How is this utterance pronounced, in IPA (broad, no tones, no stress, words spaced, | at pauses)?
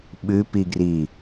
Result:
ɓʉpiɡri